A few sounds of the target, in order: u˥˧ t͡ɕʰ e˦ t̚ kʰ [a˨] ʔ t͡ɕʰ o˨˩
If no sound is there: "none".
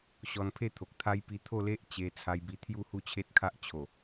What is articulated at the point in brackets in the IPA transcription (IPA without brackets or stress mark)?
a˦